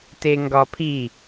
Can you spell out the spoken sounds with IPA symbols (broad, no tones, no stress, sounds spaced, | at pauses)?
t e ŋ ɡ ɒ pʰ i